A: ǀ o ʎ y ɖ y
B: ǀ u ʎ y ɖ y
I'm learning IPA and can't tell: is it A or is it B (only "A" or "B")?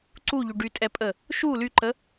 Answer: B